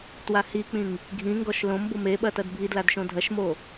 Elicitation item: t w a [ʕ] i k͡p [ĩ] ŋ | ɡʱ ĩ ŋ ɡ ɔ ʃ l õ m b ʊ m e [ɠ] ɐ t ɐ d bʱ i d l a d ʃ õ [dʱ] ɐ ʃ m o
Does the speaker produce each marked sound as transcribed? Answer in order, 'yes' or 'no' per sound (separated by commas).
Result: no, yes, no, yes